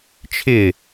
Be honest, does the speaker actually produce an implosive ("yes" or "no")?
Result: no